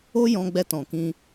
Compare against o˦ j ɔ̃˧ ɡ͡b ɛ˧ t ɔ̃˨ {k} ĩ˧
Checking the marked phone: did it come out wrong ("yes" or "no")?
no